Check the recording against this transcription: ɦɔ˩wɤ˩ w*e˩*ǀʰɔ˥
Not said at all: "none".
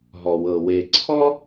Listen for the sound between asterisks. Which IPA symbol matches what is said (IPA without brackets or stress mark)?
e˩